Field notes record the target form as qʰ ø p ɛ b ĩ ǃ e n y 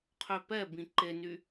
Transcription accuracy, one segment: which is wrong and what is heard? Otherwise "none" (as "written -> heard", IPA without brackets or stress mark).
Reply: none